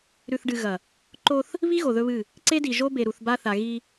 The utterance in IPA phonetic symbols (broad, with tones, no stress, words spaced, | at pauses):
ɾʉ˨θɖɨ˨ ɣɐ˨ | ǃo˦θ | βi˦ ɣo˨ðɵ˦βɨ˦˨ | ǀe˦di˨ ʒo˦ be˨ɾu˨θba˦θa˨ ɣi˦